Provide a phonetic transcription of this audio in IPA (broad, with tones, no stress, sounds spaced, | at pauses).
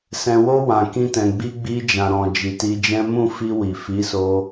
s ɛ̃˨ w o˧ w ã˨ k ĩ˧ t ɛ̃˨ ɡ͡b i˧ ɡ͡b i˧ d͡ʒ ã˨ ɾ ɔ̃˨ d͡ʒ i˨ t i˧ d͡ʒ ɛ̃˦ m ũ˦˨ f i˧ w i˨ f i˨˦ s o˧